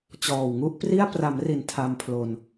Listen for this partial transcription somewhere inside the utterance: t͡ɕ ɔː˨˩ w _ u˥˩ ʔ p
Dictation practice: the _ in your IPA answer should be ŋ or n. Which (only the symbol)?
ŋ